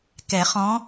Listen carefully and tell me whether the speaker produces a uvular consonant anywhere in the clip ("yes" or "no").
yes